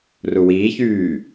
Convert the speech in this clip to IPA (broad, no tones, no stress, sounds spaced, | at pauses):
r u w iː ç yː